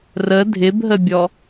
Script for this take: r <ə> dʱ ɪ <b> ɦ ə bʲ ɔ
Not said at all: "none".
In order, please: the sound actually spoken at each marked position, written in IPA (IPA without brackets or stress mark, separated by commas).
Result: ə, b